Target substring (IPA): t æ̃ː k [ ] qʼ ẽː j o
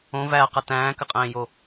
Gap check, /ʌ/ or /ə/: ə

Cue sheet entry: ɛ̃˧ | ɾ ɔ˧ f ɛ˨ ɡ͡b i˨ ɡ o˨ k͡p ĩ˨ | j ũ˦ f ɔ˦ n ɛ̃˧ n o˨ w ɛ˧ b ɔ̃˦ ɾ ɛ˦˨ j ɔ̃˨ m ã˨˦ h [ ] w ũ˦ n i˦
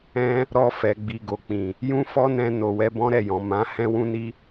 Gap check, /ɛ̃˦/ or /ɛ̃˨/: ɛ̃˦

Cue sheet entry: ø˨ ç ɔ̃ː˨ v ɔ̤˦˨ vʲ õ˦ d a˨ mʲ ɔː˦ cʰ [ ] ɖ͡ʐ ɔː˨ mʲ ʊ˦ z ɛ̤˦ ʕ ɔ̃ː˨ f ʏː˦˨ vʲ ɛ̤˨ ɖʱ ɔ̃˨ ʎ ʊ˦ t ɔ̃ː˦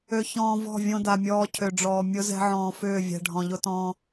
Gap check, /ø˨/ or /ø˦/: ø˨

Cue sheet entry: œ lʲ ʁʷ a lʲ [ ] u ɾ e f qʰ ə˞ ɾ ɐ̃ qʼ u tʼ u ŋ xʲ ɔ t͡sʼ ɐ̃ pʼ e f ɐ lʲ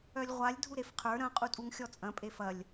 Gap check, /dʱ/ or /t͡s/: dʱ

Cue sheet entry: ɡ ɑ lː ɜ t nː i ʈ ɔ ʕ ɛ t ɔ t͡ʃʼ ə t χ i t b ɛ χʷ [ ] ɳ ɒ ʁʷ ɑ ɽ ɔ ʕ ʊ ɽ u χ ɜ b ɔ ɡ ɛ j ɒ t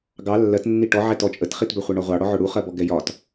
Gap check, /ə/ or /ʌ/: ʌ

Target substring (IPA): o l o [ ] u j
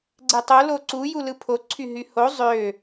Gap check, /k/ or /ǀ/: ǀ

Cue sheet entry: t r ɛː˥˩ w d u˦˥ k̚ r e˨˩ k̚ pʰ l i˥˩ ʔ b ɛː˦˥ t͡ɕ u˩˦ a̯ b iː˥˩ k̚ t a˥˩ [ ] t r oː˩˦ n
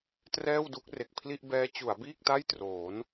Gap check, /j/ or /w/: j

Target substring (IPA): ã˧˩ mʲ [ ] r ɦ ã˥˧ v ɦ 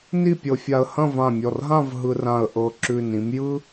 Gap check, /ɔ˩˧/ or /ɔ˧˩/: ɔ˧˩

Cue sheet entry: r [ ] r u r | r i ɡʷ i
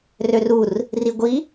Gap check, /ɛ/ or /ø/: ø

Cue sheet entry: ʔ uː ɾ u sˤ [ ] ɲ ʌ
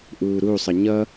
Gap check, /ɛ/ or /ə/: ə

